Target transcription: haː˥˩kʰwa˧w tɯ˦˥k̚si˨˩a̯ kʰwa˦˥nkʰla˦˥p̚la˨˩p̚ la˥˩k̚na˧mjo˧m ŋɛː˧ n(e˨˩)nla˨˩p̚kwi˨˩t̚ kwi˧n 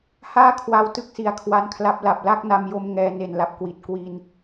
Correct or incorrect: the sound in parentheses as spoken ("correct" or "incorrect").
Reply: correct